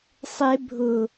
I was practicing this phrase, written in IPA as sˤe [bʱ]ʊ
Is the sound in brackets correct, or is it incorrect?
correct